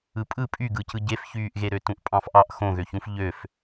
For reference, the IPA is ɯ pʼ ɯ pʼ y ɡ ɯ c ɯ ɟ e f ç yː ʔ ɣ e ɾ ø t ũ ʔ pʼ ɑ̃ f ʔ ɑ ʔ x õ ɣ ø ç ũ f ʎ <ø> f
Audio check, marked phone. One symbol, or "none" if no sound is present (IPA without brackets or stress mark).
ø